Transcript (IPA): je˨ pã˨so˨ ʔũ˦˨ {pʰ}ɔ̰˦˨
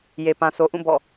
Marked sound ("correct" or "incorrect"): incorrect